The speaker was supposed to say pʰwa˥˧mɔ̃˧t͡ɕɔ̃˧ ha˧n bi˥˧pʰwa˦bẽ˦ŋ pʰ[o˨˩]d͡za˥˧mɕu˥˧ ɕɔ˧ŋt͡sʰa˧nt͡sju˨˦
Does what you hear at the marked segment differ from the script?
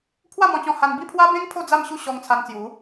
yes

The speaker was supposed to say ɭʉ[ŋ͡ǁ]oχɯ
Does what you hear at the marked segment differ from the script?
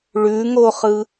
yes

